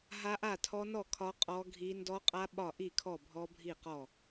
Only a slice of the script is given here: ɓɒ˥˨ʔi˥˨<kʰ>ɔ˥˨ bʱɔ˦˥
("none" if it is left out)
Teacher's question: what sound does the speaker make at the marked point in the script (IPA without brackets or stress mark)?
kʰ